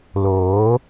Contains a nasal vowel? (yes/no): no